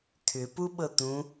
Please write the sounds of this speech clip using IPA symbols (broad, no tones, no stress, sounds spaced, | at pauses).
t̪ʰ ʏ p u ɓ ɤ t̪ ũ